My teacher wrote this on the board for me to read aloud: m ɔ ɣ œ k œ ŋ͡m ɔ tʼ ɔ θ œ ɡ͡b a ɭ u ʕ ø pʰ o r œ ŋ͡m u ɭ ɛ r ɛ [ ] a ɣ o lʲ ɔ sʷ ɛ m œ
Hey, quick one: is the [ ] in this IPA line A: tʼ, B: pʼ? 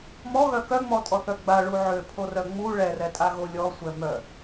A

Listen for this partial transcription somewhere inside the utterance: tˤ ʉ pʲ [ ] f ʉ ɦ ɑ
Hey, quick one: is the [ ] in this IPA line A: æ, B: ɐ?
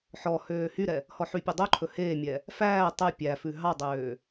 A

